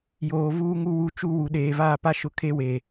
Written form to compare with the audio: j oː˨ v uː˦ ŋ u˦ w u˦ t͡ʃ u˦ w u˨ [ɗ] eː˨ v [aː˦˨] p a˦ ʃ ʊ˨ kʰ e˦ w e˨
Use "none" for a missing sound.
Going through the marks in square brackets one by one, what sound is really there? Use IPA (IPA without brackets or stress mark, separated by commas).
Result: ɗ, aː˦˨